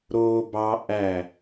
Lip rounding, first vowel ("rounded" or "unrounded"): rounded